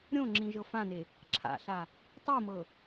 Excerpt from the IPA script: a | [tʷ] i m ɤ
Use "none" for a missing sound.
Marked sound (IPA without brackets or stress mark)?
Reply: tˤ